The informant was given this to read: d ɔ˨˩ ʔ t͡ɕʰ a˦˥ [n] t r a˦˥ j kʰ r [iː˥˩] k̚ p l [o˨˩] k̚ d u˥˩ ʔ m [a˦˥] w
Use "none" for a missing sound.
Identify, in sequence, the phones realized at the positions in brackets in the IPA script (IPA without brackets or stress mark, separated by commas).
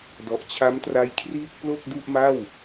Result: m, iː˥˩, o˥˩, a˥˩